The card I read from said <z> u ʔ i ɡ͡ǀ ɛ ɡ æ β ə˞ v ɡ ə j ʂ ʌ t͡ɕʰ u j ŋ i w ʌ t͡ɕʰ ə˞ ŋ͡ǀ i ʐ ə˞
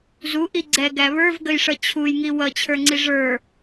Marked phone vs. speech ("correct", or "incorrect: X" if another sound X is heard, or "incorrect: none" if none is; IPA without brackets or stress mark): correct